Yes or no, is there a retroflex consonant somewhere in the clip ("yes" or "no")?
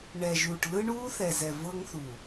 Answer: yes